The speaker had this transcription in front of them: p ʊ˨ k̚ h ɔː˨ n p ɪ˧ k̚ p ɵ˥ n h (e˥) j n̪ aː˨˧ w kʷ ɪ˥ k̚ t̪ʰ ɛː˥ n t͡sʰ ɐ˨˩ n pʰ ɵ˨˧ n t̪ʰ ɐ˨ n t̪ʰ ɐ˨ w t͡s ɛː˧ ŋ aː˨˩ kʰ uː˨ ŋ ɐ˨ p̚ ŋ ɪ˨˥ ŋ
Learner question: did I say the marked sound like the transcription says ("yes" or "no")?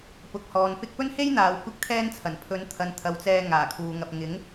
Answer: yes